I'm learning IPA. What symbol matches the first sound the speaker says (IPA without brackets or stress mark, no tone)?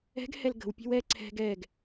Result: ɛ̤